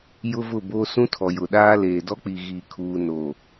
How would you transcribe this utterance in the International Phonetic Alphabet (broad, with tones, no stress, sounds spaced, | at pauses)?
j ʊ˦ v ʊ˦˨ b o˦ s ũ˦ tʰ ɔ˨ j ʊ˨ ɗ aː˦ l eː˨ d ɔ˦ k͡p i˨ ɣ iː˨ kʰ uː˨ n oː˨